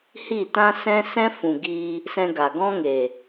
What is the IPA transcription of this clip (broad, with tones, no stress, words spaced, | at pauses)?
hi˦˨tã˦ sɛ̃˦ sɛ̃˦fũ˨ ɡi˧ | sɛ̃˧ɡa˨ɡɔ̃˦ŋe˨